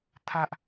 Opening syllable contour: high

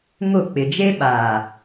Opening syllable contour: falling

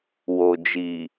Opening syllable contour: low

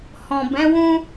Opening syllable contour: low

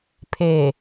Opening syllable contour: low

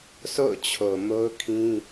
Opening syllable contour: falling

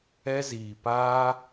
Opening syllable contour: high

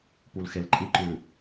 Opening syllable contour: low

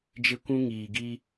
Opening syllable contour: high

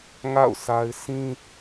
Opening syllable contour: falling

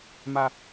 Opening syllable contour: high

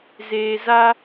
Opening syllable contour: low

